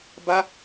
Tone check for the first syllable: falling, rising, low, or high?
high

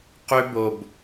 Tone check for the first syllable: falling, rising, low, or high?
high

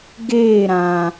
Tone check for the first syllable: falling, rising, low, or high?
falling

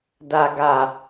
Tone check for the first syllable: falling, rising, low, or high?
low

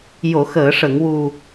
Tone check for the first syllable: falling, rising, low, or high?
low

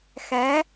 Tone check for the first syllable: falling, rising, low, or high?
rising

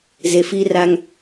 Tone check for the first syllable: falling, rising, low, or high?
low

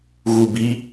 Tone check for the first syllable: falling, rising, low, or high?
low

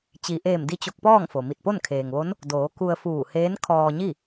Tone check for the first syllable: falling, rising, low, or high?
low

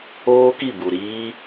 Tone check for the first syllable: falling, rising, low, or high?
high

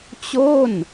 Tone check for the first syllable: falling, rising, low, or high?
falling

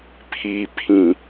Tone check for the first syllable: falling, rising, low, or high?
low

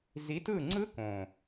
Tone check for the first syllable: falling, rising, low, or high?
rising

